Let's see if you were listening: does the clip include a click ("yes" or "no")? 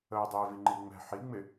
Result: yes